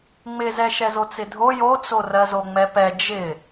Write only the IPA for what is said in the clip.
ŋ͡m ɪ z ɛ ʃ ɛ z o t͡s ɪ dʱ o j o t͡s o r ɜ z o ŋ͡m ɛ p ɛ d͡ʒ ɪ

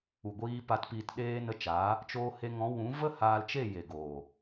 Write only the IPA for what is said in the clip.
u˨ ɡʷ iː˧ p a˧ t p iː˧ t ɗ eː˧ n ə˧ t͡ʃ aː˨˦ | t͡ʃ oː˧ h e˧ ŋ ɔ̃˨˦ w ũ˨˦ v ə˦ h aː˧ l t͡ʃ e˦˨ j e˨ ɡ oː˨

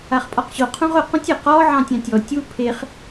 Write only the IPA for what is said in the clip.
a χ pʼ ɔ q ɕ o qʰ ũ ʁ ʊ q ũ tʲ ɘ q ɔ ʕ ɑ̃ tʲ ɑ̃ tʲ ɔ tʲ u pʰ e χ

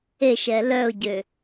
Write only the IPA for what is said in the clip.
e ʃ ɛ l œ ʊ̯ ɟ ø

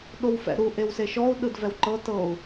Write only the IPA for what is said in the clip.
ɗ o w f ɛ̰ ɾ u ʔ e w s e ʃ ɔ u̯ ɗ ɯ d v ɛ w ǃ ɤ t ɤ u̯

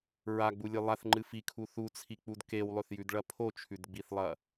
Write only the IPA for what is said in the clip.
ɹ a ɡ͡b u lʲ ɨ lˠ a θ ŋ͡ǃ ɨ f i kʰ u θ u t͡sʰ i k͡p u d k e w lˠ ɵ θ j ʉ d ɭ ɐ pʰ o t͡ʃʰ ʉ d ɡ͡b i θ lˠ ɐ

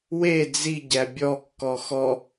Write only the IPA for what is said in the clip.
w e d͡z i ɟ æ bʲ ɔ kː ɔ x ɔ

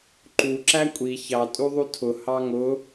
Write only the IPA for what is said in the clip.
ǃ u ǁ æ kʷʼ i ç ɑ tʼ u ðˤ u tʰ ʊ h ɑ ŋ ʊ

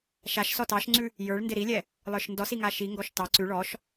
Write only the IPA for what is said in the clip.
ʃ a ʃ s ɔ t ɑ ʃ ŋ͡ǀ ʉ | j ə˞ ɭ n d ɪ ɾ i lʲ ɛ | lˠ ə˞ ʃ n d ɔ s i ŋ a ʃ i ŋ ɡ ɔ ʃ t ɑ ǀ ʉ ɭ ɔ ʃ

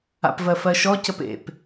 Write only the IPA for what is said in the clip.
a̰ p v ɜ f ɜ ʃ ɔ c ə p ḛ p

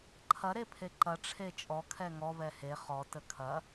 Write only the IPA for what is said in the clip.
ǃʰ ɐ ɾ e pʰ e ǃ ɐ ʈ͡ʂʰ e t͡ʃʼ ɔ kʰ ɛ ŋ ɔ v ɛ h e χ ɔ t ə kʰ ɐ

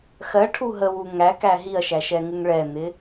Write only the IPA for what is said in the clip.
x ɜ ʈʰ u ɦ ə w u ŋ æ k æ ɦ i ɐ̯ ʃ æ ʃ ɛ ŋ ɪ ŋ ɭ ɛ n̪ ɪ

